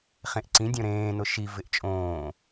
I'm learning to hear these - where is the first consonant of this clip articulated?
uvula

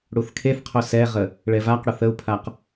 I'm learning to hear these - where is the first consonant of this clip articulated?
retroflex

